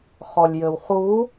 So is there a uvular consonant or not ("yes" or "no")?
yes